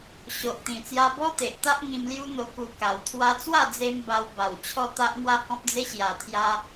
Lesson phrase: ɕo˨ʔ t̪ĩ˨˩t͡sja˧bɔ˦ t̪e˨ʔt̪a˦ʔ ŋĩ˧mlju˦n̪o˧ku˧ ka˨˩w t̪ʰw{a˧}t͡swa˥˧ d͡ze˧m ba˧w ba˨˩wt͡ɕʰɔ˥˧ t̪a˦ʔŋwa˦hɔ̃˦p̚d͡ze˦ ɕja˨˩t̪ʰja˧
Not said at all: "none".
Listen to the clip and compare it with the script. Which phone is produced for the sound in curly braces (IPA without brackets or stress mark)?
a˧